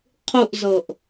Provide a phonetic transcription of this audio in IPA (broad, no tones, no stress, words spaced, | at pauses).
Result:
qʰuʔzɤʔ